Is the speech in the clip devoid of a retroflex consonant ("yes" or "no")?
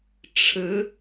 no